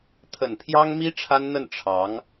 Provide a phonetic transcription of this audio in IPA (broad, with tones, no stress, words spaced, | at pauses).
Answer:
t̪ʰə˨˩npʰjɑ˥ŋmi˥ ʈ͡ʂʰa˥nn̪ə˥˩n ʈ͡ʂʰɑ˧˥ŋ